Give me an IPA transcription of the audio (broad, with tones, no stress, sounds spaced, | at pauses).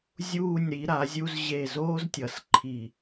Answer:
zʲ uː˧˩ nʲ ɾ i˩˧ ɾ a˩˧ zʲ u˧ z ʑ e˧˩ z oː˥ z tʲ ʌ˩˧ s ǃʰ i˧˩